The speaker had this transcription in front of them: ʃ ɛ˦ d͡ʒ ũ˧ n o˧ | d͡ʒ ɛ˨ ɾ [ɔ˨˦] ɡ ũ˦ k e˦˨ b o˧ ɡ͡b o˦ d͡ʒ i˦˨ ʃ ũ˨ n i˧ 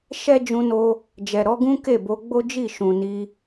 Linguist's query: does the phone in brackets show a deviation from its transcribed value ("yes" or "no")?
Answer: no